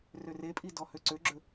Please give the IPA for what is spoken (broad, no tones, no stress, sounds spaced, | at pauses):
r ø r e pʼ i d ɔ h ø ǀ ø ɡ͡ǁ ɵ